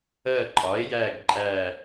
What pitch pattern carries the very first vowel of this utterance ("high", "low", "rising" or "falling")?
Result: falling